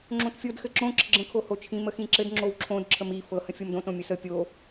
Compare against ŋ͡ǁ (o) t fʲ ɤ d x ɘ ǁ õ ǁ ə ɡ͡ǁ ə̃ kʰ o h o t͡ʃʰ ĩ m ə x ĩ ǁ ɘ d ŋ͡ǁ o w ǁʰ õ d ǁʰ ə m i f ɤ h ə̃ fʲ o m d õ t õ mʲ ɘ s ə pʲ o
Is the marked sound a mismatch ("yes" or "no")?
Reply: yes